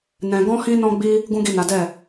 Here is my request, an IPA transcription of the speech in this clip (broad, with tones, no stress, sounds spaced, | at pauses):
n ɛ̃˧ ɡ ɔ̃˦ h ĩ˦ n ɔ̃˦ ɡ͡b i˦ | ɡ ũ˦ ɡ i˦˨ n a˨˦ d ɛ˦˨